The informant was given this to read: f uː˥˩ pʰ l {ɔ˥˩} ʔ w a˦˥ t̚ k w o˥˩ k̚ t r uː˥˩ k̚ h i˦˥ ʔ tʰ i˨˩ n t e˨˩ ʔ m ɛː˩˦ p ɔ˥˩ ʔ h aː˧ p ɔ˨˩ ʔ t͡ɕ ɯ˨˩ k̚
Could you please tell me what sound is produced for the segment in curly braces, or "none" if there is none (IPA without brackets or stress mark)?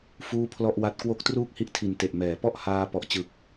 ɔ˥˩